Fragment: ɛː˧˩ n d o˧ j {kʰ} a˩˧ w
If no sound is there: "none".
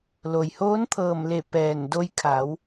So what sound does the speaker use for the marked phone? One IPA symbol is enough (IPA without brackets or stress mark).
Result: kʰ